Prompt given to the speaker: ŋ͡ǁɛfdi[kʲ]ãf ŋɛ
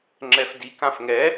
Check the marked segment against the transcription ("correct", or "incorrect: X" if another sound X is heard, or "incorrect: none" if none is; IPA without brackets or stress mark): incorrect: k